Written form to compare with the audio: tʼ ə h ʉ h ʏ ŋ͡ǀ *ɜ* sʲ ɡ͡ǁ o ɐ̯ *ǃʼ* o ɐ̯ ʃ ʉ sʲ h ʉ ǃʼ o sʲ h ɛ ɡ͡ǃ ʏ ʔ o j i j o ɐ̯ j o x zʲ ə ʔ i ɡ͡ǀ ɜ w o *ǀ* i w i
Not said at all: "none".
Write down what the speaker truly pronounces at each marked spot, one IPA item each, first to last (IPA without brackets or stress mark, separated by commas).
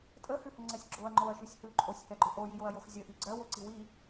ɛ, ŋ͡ǃ, ǀ